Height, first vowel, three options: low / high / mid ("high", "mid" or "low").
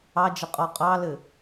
low